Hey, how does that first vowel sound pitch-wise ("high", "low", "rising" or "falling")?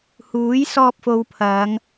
rising